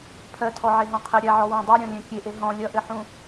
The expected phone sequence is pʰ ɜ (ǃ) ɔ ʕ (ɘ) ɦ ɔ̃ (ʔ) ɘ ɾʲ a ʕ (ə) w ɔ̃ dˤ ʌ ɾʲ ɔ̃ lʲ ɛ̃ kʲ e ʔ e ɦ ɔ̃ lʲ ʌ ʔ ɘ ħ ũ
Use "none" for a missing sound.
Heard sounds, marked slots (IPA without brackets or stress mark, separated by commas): tʰ, e, qʰ, ɔ